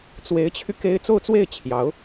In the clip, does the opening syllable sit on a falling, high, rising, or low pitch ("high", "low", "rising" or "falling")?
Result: rising